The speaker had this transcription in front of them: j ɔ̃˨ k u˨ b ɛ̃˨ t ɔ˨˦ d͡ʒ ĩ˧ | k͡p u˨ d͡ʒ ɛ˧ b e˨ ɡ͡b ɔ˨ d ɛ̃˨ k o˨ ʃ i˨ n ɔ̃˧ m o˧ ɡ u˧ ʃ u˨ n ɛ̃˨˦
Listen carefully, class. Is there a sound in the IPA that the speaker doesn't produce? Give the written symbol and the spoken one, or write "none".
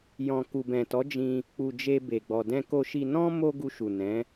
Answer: ɛ˧ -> e˧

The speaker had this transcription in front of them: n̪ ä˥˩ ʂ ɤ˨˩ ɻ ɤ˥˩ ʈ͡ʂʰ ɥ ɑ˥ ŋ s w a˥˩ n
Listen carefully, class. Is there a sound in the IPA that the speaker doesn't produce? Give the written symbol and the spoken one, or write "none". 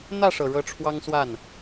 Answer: ɥ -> w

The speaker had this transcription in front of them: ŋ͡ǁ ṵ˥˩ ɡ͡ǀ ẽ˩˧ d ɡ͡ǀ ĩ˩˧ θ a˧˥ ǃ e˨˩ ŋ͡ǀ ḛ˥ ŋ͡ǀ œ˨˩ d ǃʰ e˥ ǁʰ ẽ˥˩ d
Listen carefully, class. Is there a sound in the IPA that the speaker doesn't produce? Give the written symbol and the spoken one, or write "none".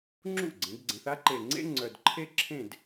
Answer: ĩ˩˧ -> ẽ˩˧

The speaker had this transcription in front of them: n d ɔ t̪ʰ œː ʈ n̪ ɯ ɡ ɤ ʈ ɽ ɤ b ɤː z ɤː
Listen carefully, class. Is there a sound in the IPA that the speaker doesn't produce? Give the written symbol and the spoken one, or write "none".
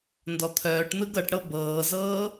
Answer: none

